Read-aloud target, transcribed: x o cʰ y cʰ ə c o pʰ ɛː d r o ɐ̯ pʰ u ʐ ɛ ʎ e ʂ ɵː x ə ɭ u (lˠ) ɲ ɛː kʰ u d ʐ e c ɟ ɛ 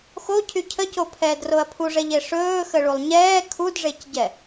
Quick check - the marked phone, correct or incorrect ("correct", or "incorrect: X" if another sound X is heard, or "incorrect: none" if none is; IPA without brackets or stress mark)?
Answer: correct